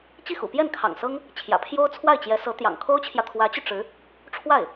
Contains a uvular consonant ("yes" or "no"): no